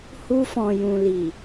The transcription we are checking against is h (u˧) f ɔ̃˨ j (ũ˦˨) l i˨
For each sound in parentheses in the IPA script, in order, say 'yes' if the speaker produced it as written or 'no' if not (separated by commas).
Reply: yes, no